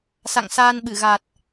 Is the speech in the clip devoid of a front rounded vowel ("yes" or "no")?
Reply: yes